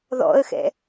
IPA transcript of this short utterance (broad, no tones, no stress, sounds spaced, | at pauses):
ð ɔ̰ ə̯ x ɛ̰